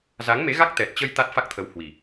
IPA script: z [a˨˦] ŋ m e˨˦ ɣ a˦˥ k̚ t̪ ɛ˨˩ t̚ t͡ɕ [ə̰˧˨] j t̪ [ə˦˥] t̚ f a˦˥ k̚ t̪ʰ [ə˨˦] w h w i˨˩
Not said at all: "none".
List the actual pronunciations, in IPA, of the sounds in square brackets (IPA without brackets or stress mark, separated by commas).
a˨˦, ə˧, a˦˥, ə˨˦